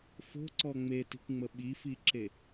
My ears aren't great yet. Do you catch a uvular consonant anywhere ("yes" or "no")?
no